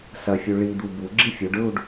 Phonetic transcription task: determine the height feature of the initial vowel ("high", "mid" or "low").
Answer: low